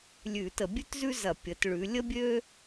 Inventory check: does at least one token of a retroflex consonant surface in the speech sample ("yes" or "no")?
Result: yes